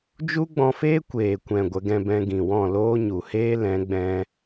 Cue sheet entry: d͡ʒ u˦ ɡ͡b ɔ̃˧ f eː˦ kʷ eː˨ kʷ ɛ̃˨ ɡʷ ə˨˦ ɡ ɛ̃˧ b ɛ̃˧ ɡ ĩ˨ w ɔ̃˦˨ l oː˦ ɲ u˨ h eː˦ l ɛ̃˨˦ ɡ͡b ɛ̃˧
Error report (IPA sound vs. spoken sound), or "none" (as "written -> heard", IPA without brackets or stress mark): none